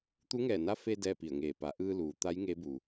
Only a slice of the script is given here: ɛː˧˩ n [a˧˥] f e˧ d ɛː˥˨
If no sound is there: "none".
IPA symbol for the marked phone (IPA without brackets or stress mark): a˧˥